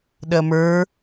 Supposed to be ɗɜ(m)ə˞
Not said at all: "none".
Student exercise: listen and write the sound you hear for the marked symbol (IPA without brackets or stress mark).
m